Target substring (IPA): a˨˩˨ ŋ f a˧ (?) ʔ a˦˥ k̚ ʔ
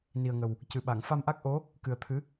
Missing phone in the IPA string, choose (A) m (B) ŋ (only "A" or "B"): A